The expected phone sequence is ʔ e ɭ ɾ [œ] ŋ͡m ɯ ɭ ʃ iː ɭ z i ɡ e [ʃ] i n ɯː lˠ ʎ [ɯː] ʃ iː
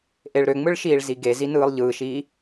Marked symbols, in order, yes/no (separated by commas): no, no, yes